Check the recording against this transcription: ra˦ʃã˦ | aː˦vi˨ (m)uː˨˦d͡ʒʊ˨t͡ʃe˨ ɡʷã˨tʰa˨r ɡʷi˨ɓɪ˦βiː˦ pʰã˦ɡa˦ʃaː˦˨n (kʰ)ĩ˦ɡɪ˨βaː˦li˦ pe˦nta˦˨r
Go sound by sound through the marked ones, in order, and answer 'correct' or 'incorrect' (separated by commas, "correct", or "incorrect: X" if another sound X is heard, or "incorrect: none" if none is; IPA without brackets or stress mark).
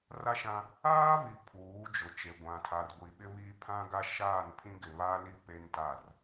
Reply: incorrect: pʰ, incorrect: pʰ